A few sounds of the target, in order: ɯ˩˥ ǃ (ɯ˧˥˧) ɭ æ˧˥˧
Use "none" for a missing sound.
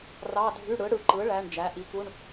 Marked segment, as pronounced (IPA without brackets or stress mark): ɯ˩˥